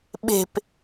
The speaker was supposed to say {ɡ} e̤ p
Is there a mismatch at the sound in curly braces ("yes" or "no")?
yes